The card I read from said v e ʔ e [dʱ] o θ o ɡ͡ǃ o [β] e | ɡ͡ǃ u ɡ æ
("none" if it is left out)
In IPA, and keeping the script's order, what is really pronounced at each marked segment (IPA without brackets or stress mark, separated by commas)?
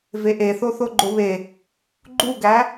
θ, β